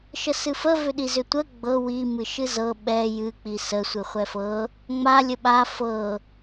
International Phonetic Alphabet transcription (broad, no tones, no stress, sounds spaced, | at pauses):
ʃ ə s ɨ f ə v ʏ ɗ i z ʏ tʷ ə ɡ͡b ɤ w i m ɨ ʃ ɨ z ɤ ɓ ɛ j ɨ k͡p i s ə sʷ ɨ χʷ ɛ f ɤ | ŋ͡m a lʲ ə ɓ a f ɤ